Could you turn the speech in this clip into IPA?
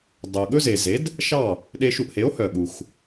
dˤʉ˩o̯ɠɵ˥ze˩ze˩˥d | ʃɑ˥˩ | ɗe˧ ʃu˧ʔhe˩˥o̯hœ˩ɠu˩x

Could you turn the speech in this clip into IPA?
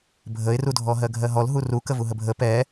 bʱəɪ̯rudʱɔ ɦɜɡʱɜɦɔl ɦuru kəvuɦəbʱə pɛ

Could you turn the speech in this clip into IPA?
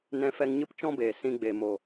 nɛ̃˧ fɛ˧ŋɲɨ˦p t͡ʃɔ̃˦beː˨ sĩ˧ɡ͡be˨mo˨

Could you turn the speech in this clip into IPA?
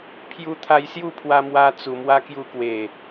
pʰju˧t̪ʰa˧jsju˥˧ pʰwa˧mwa˧ t͡su˨˩mwa˦kju˧kwe˨˩

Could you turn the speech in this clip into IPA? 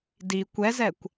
di kʷɛzɛkʷ

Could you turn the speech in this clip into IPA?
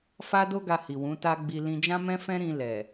fa˦do˦ɡa˧hi˨ wũ˨˦ta˦ɡ͡bi˧ lĩ˧d͡ʒã˦mɛ̃˦fɛ̃˦ ɾĩ˧ lɛ˨

